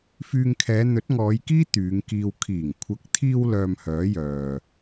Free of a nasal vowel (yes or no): yes